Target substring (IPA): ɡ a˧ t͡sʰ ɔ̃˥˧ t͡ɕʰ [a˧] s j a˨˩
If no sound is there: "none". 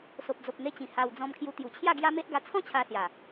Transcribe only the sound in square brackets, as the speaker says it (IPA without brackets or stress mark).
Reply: a˧